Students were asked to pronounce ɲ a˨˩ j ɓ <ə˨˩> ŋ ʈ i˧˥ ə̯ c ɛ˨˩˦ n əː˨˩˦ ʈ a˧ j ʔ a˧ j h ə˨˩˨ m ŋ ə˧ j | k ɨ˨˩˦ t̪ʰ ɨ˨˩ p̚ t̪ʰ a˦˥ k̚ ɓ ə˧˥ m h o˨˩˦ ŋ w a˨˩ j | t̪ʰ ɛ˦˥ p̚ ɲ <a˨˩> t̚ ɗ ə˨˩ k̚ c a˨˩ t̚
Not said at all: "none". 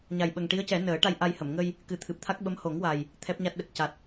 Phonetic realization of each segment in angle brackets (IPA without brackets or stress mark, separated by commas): ə˨˩, a˦˥